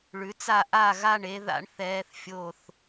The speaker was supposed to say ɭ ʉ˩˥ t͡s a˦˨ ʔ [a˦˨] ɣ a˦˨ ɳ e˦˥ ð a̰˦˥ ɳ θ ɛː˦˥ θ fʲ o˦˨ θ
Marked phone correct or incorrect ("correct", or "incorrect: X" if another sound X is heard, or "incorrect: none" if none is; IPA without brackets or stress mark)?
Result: correct